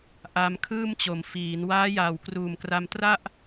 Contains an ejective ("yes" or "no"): no